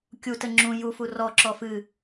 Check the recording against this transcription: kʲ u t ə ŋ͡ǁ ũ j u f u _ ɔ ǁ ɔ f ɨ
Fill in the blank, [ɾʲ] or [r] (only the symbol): r